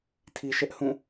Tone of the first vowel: low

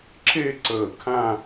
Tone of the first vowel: falling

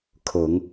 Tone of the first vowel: low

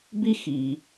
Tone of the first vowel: high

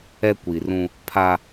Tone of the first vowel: high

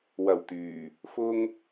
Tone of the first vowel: low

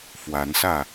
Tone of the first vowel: rising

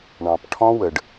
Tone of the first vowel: low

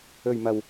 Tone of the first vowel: low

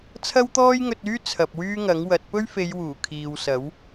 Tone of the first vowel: high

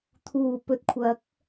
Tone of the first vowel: low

